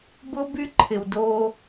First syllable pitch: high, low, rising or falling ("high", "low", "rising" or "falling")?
high